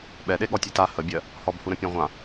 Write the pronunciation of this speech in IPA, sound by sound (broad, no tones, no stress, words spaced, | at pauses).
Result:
ɓɛɗe ɠɔtʲeta həbʲɜ | hɔbhuɾə̃ pʲɔ̃ʁʷã